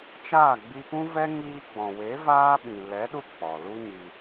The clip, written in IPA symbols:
t͡ʃ aː˦˨ ɡ͡b i˧ p ũ˦ v ɛ˦ ŋ iː˧ ɡ͡b ɔ̃˨ w e˨˦ v aː˦ ɓ ĩ˨ l ɛ˨˦ ɗ u˧ k͡p ɔ˨ l u˦ ɲ i˧

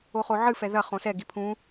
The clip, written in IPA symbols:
o χ o ʕ ɨ f ɛ ð ɐ χ õ s ɛ ɡ i pʰ ũ

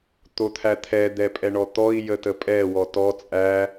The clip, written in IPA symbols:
t̪ o t̪ʰ æ t̪ʰ ɛ d̪ ɛ pʼ ɛ ɳ ɔ t̪ ɔ i̯ j ə t ə pʼ ɛ w ɔ t ɔ t͡sʼ æ

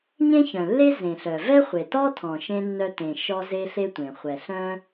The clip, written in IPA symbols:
ɲ ẽ˥ ç œ̃˩ lː e˥ z ẽ˩ ɬ œ˩ v ɛ˥ χʷ e˩ t ɔ˥ tʰ ɔ̃˩ ʃ ẽ˥ nː œ˥ t ẽ˩ ʃ ɔ˥ z e˥ ɬ e˥ tʷ ẽ˩ χʷ ɛ˩ ɬ œ̃˥

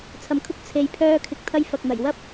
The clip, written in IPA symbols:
t͡sʰ ɐ˨˧ m kʰ ʊ˥ k̚ t͡sʰ e˧ j pʰ œː˥ kʰ ɪ˧ k̚ t̪ʰ ɐ˥ j f ɐ˨ k̚ n̪ ɐ˨˩ j w ɐ˥ p̚

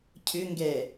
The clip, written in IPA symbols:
cʰ ʏ ŋ ɡ ɛ

